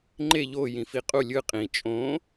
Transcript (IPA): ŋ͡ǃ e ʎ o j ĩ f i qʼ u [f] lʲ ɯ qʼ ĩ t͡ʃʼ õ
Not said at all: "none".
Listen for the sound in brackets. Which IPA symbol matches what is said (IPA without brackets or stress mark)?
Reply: none